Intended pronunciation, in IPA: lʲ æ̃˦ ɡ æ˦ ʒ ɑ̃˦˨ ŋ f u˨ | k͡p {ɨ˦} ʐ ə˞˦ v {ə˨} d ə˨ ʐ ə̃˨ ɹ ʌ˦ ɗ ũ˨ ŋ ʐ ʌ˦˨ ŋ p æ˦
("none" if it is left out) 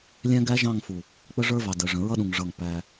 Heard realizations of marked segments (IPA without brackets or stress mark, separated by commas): ə˦, ɑ˨